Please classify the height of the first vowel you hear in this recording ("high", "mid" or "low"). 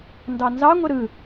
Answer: low